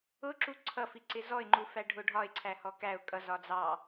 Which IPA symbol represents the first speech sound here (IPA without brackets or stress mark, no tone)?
ʊ